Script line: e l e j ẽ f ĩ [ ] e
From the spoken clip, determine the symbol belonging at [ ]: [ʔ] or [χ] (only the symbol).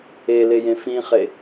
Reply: χ